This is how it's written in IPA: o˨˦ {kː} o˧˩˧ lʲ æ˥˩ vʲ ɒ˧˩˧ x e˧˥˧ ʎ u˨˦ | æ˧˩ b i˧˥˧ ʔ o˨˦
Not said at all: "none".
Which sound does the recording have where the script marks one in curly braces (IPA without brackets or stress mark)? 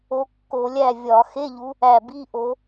kː